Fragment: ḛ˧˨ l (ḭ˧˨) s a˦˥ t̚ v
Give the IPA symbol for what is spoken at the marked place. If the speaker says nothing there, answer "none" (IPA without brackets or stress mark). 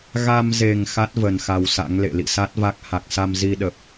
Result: ḭ˧˨